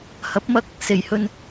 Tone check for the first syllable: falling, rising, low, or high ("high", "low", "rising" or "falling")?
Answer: rising